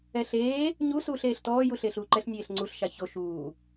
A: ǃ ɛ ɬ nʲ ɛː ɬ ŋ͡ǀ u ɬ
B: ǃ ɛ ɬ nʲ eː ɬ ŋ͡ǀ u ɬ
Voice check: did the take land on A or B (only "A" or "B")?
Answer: B